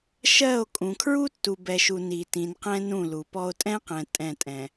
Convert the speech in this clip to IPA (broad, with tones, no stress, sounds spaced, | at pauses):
ʃ ɜ˦˨ o̯ kʼ ũ˨ kʰ ɹ u˦ tː u˨ b ɛ˨ ʃ u˨ n i˨ t ĩ˨ n q ɛ̃˦ n ũ˦˨ l u˨ p ɔ˦ o̯ tʼ ɛ̃˦ q ɛ̃˨ tʼ ɛ̃˦˨ tʼ ɛ̃˨